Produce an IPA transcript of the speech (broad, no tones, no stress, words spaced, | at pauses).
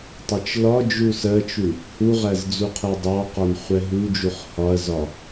tˤɜt͡ʃlɒd͡ʒu sɜt͡ʃu | huʁæz d͡zuqʰɛdˤɑqɒn χʷɛɦud͡ʒuχ hɒɐ̯zɒ